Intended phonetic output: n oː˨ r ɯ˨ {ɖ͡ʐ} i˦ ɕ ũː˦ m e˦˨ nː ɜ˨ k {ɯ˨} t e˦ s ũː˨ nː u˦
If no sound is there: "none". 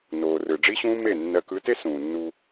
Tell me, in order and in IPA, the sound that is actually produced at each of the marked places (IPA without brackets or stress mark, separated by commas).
ɖ͡ʐ, ɯ˨˦